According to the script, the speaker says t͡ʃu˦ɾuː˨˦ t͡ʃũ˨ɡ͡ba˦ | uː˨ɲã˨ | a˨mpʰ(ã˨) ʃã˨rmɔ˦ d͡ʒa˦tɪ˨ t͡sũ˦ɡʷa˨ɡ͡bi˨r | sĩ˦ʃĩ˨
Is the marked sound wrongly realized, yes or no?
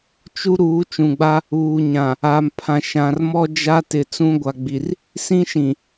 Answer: no